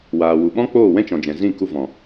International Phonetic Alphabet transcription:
waː˨ wu˨ɓɔ̃˦k͡poː˦˨ wɛ̃˦t͡ʃɔ̃˨d͡ʒɛ̃˨zĩ˦˨ ku˧vɔ̃˨

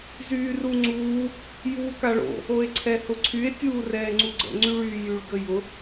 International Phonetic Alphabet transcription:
zyːruŋ͡ǀuː | juːkaɭo̰ | oe̯ǀʰɛhʊǀʰye̯ tʲuːrɛːŋ͡ǀuɡ͡ǀə̰ ŋ͡ǀyɭyːjyɭ ɡəjʊ

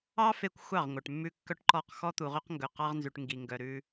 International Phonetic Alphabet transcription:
ɑ˦ fe˦kʷxʷɑ˦˨ʁŋʷœ˨ʈ mːʉ˦kːœ˦ʈǃɔ˦˨q xɔ˦t̪u˨ʁø˦qŋɡɵ˨ qɑ˦ʁnzʉ˨ʈ ŋɡi˨ŋɡœ˨ɾʉ˦

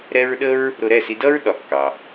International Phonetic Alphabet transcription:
ɾɛ˥ɹ ɗə˥ɹ | ɾʊ˧ɾɛ˥˩si˧dʌ˥ɹ ɗɒ˩˥kːɑ˩

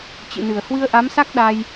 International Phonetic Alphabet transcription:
t͡ɕɨ̰˧˨nɨ˧˩ə̯ hwɨ˧ə̯ʔa˨˦msa˦˥k̚ ɗa˧j

